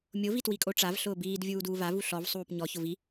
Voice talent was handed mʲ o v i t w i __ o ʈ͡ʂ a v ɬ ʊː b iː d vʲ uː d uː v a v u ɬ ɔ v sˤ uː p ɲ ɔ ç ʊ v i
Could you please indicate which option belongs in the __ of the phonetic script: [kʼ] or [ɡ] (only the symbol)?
kʼ